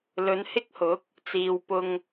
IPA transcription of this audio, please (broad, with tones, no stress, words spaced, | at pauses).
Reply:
lɵ˨˧nhɪ˥k̚hʊ˨˥k̚ | t͡siː˨wpʊ˧ŋ